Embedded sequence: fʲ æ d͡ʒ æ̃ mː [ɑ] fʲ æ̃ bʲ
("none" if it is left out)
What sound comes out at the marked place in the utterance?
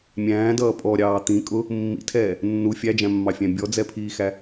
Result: ɑ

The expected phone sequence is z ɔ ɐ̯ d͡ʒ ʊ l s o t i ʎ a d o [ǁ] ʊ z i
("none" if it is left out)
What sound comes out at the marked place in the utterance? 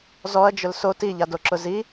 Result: ǁ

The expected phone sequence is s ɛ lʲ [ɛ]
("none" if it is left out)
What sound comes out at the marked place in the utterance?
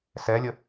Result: ə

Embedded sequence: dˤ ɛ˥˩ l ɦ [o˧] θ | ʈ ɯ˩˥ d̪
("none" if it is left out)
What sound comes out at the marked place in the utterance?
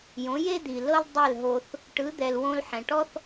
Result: o˧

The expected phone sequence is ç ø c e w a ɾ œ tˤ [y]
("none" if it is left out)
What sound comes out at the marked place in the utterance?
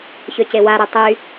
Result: y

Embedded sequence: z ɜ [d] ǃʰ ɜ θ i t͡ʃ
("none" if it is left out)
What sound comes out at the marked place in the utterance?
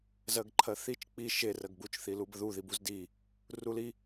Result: ɡ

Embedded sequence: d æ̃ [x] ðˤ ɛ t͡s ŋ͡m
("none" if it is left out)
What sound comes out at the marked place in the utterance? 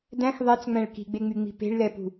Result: x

